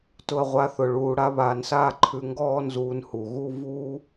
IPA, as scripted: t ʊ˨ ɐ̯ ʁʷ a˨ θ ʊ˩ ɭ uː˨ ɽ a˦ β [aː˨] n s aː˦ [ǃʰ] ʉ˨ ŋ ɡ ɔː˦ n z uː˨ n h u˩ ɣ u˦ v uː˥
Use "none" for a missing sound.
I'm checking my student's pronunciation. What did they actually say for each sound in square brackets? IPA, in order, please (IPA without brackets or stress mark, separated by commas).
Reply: aː˨, ǃʰ